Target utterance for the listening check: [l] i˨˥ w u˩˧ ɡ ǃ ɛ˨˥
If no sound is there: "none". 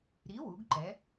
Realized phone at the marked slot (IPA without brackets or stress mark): ɾ